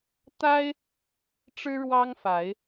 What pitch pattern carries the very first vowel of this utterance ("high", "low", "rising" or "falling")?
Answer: high